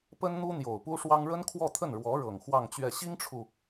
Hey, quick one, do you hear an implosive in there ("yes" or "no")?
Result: no